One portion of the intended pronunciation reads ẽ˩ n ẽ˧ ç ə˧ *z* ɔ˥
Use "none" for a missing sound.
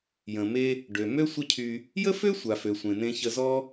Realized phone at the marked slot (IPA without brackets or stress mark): z